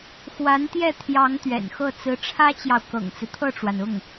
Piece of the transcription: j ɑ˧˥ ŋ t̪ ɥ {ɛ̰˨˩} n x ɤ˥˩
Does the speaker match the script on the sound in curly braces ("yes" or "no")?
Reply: yes